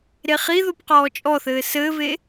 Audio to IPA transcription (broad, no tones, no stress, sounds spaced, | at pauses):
ɾ e χ i ð o p q ɔː t͡ʃʼ ɔ θ ɘː s ɘː v e